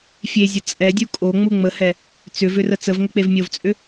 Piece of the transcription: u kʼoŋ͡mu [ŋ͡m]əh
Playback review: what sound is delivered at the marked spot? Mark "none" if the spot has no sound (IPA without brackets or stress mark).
ŋ͡m